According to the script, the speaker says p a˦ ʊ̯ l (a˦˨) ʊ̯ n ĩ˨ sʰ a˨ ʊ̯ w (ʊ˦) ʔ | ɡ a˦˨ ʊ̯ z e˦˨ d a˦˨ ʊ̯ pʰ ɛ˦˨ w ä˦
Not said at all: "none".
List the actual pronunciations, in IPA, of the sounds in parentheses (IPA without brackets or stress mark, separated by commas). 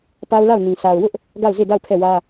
a˦˨, ʊ˦